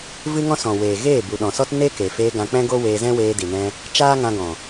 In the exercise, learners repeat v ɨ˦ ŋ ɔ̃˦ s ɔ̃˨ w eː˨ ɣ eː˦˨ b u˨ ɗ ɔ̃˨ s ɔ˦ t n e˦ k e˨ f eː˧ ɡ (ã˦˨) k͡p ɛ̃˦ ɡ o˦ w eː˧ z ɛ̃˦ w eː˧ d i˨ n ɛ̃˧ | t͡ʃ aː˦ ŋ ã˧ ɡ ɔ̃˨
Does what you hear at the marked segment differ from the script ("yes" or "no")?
yes